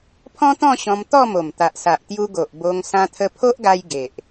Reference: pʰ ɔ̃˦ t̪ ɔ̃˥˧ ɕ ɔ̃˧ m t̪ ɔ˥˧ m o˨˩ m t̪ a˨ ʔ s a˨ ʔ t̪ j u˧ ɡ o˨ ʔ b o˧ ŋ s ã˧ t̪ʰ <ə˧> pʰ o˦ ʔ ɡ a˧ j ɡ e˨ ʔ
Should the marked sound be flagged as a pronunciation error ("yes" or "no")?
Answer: no